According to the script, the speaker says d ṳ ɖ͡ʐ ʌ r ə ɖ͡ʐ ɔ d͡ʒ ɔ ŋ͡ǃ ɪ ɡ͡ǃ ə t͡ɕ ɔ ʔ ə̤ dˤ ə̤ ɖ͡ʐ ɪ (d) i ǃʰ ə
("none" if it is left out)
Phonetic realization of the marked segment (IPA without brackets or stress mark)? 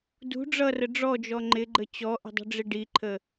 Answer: ɖ